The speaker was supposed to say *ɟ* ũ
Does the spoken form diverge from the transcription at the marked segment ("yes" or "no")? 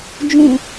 yes